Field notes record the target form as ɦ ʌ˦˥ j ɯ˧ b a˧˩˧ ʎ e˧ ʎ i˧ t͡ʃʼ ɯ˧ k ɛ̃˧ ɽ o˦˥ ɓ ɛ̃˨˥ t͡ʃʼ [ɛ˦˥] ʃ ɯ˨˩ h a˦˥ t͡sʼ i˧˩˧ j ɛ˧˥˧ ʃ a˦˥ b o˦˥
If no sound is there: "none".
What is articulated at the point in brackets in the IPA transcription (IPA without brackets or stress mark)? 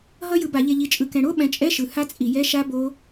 ɛ˧˥˧